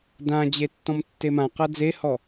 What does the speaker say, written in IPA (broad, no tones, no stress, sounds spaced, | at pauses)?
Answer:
d ã d͡ʑ e tː ɔ̃ m tː e m ã q a d͡z e h ɔ